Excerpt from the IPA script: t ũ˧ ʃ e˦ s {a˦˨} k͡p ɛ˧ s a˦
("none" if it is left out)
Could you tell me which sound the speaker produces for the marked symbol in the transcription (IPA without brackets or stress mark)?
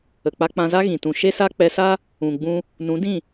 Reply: a˦